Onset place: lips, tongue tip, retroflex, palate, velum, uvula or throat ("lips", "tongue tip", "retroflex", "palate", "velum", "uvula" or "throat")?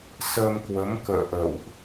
tongue tip